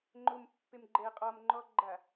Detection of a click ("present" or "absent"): present